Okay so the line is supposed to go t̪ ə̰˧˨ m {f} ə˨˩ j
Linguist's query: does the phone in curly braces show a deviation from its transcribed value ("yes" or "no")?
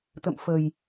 no